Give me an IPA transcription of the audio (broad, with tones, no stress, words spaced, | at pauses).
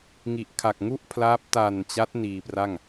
ŋi˨˩ʔkʰa˨˩k̚ŋu˥˩ʔpʰlaː˦˥p̚ ta˨˩nt͡ɕa˦˥t̚ niː˧pra˥˩ŋ